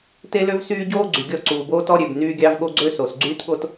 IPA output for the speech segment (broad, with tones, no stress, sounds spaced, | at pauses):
t e˦ l ø˦ v s yː˦ ɟ oː˦ ɡ͡ǀ y˨ ɡʲ ɔ˦˨ ǀ uː˨ b oː˦ t ɔ˦ ɾʲ ø˨ b n yː˦ ɡʲ ɑ˦ v ɠ o˦ ɡ͡ǀ ø˦ s o˨ s ɡ͡ǀ yː˦ t ɠ o˦ t